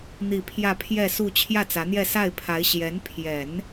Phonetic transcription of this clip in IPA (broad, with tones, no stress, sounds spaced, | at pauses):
n̪ i˥˧ pʰ j ä˥˧ pʰ j ɛ˥˧ s u˥˧ t͡ɕʰ j ä˥˩ t͡s ä˧˥ n̪ j ɛ˥˧ s a˥˩ ɪ̯ pʰ a˧˥ ɪ̯ ɕ j ɛ˧˥ n pʰ j ɛ˨˩˦ n